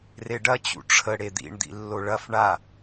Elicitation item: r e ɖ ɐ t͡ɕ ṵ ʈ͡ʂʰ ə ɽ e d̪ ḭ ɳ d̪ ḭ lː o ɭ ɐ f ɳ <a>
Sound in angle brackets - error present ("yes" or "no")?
no